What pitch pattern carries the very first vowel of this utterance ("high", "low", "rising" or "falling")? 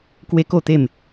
high